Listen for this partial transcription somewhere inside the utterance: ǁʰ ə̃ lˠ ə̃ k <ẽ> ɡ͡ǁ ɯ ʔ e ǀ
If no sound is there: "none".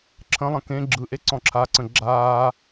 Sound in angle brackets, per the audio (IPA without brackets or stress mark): ẽ